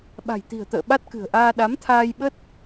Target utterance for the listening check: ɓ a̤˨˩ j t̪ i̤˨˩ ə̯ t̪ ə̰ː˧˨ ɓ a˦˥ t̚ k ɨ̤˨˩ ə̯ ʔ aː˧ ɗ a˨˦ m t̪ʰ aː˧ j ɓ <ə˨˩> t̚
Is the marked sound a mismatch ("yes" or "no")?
yes